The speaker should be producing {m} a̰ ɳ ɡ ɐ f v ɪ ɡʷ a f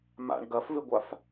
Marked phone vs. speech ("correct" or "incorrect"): correct